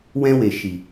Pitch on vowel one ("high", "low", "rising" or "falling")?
high